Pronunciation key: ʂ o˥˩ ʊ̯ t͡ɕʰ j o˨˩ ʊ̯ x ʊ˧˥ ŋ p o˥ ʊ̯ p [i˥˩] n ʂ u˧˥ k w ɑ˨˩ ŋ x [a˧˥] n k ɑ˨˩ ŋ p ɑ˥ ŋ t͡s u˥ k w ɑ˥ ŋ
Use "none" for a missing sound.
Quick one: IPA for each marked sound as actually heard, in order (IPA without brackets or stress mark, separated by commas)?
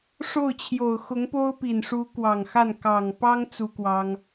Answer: i˨˩, a˥˩